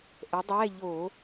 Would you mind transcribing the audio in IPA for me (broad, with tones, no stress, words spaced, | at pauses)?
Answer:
ʔə˨˥dˤɛ˧˥˧ ʎo˧˩˧